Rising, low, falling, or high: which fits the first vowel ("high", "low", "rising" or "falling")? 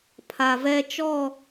low